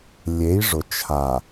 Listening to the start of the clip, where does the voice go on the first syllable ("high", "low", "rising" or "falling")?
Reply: rising